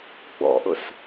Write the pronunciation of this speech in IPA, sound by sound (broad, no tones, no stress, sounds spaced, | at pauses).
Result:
ɡ͡b ɔ̰ ʔ ʊ s